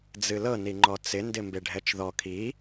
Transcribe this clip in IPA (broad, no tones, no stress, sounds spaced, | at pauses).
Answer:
d͡z ɨ l ɤ n i ŋ͡ǃ ɔ t͡s ɪ n d ɪ m b e ɖʱ ɛ t͡ʃ ð ɔ kʰ i